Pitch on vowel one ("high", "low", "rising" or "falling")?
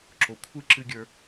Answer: low